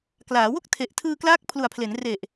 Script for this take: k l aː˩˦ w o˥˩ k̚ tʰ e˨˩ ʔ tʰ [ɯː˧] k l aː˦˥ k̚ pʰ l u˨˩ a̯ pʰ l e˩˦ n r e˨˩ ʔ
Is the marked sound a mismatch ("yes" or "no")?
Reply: no